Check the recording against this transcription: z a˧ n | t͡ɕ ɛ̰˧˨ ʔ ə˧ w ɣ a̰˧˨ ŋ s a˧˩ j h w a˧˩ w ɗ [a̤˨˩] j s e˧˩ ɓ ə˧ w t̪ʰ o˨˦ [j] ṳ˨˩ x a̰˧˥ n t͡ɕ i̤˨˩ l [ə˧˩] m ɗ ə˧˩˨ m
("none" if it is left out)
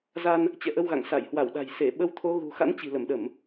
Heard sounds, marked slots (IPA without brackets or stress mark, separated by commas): a̤˨˩, ɣ, ə˧˩